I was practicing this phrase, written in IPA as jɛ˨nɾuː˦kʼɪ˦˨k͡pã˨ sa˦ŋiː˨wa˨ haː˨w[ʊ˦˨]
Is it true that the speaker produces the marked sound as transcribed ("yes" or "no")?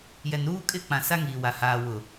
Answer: no